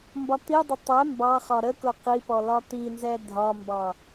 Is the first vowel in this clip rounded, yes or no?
yes